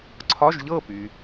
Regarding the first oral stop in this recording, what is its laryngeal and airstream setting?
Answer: click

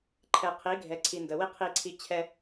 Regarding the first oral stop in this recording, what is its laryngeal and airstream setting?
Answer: click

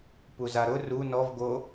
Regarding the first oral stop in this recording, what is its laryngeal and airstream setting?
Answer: plain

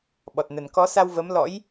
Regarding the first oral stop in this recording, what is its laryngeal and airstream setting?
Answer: implosive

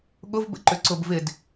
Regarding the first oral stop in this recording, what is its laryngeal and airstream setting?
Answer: implosive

